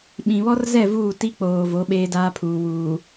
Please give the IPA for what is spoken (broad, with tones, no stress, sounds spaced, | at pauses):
ɓ ĩ˨ β ɔ˦ r z ɛ˦˨ v uː˦˨ t i˦ k͡p oː˨ v o˨˦ ɓ eː˦ d aː˦ pʰ uː˨ w uː˨